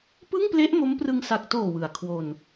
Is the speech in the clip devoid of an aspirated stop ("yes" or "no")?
no